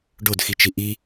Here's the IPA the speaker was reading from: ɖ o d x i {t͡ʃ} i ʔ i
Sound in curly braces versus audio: correct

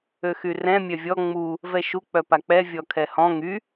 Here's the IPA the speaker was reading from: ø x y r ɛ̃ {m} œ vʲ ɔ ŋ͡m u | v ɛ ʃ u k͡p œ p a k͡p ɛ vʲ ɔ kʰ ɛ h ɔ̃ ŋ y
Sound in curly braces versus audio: incorrect: mʲ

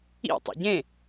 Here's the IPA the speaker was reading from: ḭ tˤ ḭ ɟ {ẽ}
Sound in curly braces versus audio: correct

